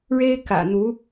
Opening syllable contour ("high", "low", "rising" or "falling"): high